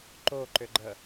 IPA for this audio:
ǃoǃʏɡ͡ǃə

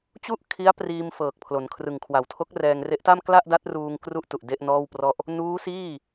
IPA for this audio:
t͡ɕu˥˩ʔ kʰi˦˥a̯priː˧m fɤː˨˩k̚pʰlo˩˦nkʰrɯ˨˩ŋkʰwa˨˩w tʰo˦˥k̚rɛː˧ŋre˦˥ʔta˥˩m kla˥˩ʔda˦˥t̚ruː˧ŋ kru˥˩ʔtu˨˩ʔ de˥˩ʔnɔː˥˩wprɔ˥˩ʔ | nuː˦˥siː˥˩

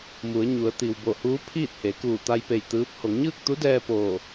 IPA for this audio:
mu˩˧ə̯ɲu˩˧ə̯t̪i˩w bo˧˩huː˧˥ pʰiː˥˨t̚he˩˧kuː˧˩ t̪a˧jpe˧˩j t̪ɯː˧˥p̚ ho˩˧ŋɲɯː˥˨k̚t̪u˧˥dɛː˧ poː˧˩

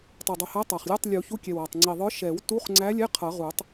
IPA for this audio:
tˤə˞˨˩dˤu˨˩hæ˧˥ tˤɑ˨˩χlʲʌ˧˥˧tˤ lʲu˨˩˦ çu˧˥˧kʲɛ˨˩wɑ˨˩tˤ ŋ͡ǀi˨˩ðˤə˞˧˥ ʃɛ˨˩˦w tu˧˥˧χŋ͡ǀæ˧˥lʲɛ˧˥˧ qʰʌ˨˩˦ʁu˨˩˦tˤ

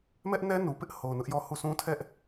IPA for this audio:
mɛ˦ʔnɛ˦ nu˨pɪ˦ʔho˨ʊ̯ nʊ˦ʔjɔ˦hu˦˨ sʰũ˦tʰɛ˦ʔ

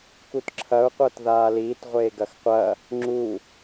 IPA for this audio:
kutǁʰɐu̯qʷɤt ðaːliːtʁʷeː ɡɐxqʷɐ | ŋ͡ǁu

